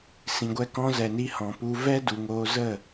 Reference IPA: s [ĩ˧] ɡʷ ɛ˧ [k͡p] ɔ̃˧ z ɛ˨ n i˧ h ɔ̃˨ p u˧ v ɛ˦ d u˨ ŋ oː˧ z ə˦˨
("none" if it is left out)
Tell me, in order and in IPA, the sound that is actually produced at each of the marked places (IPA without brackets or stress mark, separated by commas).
ĩ˨, k